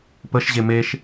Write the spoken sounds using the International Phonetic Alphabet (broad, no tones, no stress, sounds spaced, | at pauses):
p ə ʃ ʑ e m e ʃ